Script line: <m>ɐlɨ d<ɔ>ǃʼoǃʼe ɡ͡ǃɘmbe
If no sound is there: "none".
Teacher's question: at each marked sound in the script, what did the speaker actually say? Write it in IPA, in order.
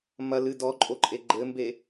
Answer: m, ɔ

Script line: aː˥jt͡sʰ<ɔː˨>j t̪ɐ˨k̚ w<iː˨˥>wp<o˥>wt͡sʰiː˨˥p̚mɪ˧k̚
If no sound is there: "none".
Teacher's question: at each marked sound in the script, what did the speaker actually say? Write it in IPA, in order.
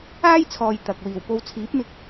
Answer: ɔː˨, iː˨˩, o˧

